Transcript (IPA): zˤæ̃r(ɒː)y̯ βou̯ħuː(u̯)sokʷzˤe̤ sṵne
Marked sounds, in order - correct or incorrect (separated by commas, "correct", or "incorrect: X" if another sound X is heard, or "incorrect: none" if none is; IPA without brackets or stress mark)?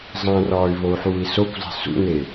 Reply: correct, incorrect: i̯